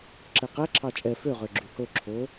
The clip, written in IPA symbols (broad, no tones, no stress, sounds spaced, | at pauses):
ǁ ɛ q æ ǁʰ ɑ t͡ʃʼ ɛ f ø ʁ ø ɡ͡ǁ y h o ǁʰ o